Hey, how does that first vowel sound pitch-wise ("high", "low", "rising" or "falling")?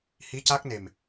rising